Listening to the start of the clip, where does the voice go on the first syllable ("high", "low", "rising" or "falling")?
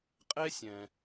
high